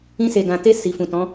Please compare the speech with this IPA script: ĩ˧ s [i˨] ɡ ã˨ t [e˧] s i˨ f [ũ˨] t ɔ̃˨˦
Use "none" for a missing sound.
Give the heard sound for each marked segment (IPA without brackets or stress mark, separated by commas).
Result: e˨, e˧, ũ˨